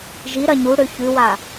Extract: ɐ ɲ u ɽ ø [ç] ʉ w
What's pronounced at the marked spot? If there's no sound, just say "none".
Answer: ç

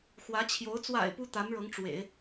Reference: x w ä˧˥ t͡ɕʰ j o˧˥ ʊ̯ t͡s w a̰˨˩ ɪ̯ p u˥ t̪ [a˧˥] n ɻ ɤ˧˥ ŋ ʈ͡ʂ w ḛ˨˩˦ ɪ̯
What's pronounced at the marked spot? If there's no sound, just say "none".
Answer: a˧˥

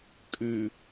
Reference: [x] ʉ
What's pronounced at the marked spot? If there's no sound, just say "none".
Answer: kʼ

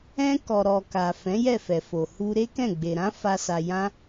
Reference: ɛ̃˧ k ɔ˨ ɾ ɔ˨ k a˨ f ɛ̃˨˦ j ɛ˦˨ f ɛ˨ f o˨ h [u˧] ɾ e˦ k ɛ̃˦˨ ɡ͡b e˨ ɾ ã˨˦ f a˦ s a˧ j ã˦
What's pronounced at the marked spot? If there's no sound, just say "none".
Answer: u˧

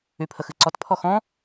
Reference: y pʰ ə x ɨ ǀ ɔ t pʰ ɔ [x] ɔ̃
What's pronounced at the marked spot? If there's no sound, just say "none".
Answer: x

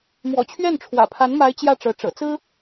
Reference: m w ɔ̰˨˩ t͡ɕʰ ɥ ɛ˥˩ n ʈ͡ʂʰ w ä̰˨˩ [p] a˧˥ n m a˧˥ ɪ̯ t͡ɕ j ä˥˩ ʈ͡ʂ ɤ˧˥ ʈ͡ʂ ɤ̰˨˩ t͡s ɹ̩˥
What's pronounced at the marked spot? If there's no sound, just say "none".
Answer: pʰ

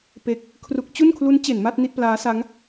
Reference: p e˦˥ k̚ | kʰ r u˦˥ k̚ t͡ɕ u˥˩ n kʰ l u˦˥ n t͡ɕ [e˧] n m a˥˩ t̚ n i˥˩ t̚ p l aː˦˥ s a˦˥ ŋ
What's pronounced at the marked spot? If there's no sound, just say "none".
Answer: e˩˦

